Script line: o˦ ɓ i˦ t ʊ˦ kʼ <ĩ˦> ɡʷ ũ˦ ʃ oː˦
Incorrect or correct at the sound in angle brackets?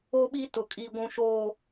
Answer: incorrect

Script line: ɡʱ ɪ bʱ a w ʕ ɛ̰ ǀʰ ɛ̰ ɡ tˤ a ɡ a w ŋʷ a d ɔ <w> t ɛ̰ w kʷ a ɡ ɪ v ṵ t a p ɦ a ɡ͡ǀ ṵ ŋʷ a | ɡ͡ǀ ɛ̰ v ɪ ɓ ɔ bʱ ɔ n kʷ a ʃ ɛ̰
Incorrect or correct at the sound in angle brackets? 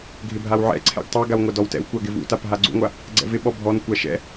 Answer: correct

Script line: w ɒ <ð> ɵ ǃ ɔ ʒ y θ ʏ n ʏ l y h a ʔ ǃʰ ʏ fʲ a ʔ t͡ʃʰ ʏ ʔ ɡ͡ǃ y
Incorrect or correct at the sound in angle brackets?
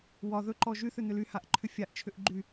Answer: correct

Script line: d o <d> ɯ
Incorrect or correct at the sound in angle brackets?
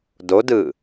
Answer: correct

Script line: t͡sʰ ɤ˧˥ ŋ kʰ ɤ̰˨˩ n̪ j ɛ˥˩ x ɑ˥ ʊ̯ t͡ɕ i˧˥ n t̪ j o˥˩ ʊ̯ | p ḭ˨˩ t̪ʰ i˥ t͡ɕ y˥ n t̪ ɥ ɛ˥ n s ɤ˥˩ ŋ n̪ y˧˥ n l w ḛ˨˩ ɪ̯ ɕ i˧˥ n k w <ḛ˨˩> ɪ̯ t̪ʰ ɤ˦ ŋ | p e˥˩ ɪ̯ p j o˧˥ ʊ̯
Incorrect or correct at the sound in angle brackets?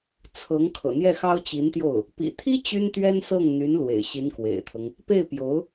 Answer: correct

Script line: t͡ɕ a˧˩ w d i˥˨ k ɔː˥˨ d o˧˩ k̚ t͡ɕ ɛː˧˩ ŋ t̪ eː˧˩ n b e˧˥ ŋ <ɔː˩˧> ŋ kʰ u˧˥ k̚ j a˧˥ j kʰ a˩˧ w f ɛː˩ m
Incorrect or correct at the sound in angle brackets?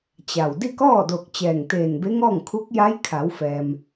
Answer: incorrect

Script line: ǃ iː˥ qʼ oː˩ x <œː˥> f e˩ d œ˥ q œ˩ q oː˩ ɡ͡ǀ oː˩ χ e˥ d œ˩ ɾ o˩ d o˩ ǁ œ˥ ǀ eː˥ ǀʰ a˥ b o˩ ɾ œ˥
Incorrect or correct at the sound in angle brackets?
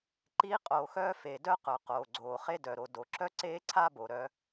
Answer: correct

